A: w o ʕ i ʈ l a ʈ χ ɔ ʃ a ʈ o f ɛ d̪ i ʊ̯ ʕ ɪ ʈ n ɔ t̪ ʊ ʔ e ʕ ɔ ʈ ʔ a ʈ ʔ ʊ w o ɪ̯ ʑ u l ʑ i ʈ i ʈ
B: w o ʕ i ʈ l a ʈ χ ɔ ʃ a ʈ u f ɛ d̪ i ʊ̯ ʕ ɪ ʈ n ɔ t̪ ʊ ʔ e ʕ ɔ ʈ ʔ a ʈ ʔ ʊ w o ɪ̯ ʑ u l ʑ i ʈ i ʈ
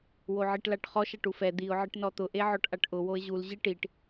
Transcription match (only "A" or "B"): B